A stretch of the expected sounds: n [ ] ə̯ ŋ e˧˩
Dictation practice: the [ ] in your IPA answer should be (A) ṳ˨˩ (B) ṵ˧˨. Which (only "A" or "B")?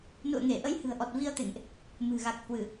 B